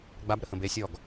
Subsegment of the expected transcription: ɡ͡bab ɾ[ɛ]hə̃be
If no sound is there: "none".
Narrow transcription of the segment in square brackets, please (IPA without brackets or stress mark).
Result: ə